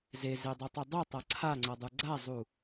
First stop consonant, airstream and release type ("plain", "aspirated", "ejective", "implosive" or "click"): plain